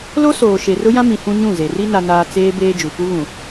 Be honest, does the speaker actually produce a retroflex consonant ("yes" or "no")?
no